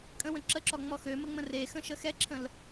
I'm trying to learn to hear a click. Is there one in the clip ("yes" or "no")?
yes